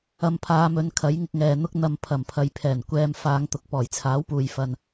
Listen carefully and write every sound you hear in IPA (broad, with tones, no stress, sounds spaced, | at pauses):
ɐ˨ m pʰ aː˨˧ m ɵ˨˧ n kʰ ɐ˨˥ j ŋ ɪ˧ k̚ ŋ ɛː˨ n̪ ʊ˧ k̚ n̪ ɐ˨ m pʰ ɐ˨˩ m pʰ ɐ˨˧ j pʰ ɛː˨˩ n kʷ ɛː˨ m f aː˨˧ ŋ t̪ ʊ˨˥ k̚ p ɔː˨˩ j t͡sʰ aː˨˥ w p uː˨ j f ɐ˨ n